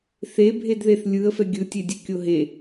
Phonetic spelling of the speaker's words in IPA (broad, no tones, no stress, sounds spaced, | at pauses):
θ e bʱ e d ð e θ lʲ ɯ ə̯ f ɛ ɡʲ ɯ tʲ e dʲ ɛ kʲ o ɦ e